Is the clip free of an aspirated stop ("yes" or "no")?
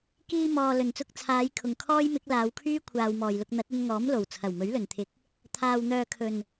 no